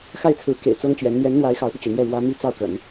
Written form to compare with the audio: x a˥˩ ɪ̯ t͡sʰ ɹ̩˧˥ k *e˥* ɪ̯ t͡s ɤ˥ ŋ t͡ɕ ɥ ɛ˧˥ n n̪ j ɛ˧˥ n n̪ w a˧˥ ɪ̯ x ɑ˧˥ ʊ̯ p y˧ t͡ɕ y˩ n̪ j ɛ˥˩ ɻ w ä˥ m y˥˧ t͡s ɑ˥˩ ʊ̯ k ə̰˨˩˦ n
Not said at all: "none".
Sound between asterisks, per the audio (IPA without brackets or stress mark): ḛ˨˩